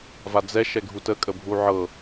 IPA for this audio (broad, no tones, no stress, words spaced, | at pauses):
vad͡zɛ ʃɛɡʱutəkʼə bʱuʕɤ